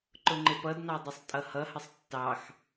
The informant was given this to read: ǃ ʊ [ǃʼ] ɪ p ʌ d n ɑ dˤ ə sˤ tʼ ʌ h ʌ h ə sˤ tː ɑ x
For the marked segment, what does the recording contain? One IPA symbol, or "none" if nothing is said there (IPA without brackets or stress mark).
ŋ͡ǃ